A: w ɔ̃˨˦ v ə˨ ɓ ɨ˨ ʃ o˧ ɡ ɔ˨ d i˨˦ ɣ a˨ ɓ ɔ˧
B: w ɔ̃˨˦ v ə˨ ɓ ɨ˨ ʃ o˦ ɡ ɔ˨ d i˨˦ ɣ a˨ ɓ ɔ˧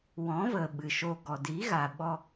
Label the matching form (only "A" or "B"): A